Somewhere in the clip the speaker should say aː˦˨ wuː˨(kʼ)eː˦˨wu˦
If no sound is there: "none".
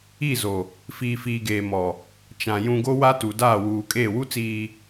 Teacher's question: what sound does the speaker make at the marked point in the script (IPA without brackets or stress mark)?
kʼ